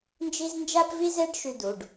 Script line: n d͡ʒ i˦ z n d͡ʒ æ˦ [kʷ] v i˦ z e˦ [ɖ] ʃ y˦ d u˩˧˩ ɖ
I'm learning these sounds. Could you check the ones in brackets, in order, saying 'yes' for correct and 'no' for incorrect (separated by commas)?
no, yes